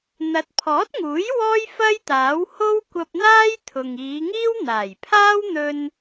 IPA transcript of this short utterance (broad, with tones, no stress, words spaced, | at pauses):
n̪ɐ˨˥t̚pʰɔː˨˥t̚ŋuː˨˥j wɔː˥jfɐ˥j t̪aː˨˥w ho˥wkʷɐ˧p̚n̪aː˥jt̪ʰʊ˨ŋ iː˨˧ŋiː˥w n̪aː˨˩jpʰaː˥wn̪ɵ˧n